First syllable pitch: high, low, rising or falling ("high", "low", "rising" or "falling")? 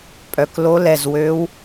rising